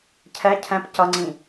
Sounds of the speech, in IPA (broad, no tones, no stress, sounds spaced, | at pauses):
cʰ ɛ cʰ ɛ̃ p c ʌ ŋ͡ǀ ĩ